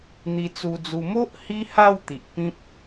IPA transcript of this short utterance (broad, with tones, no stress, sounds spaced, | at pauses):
n̪ i˨˩ t͡s u˨˩ d͡z u˨˩ m o˦ ʔ h i˦ h a˥˧ w t̪ i˨ ʔ p ĩ˦ p̚